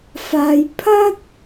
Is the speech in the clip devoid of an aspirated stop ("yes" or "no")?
no